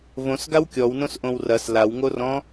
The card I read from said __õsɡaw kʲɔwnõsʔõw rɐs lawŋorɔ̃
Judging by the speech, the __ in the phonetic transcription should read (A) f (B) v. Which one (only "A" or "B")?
B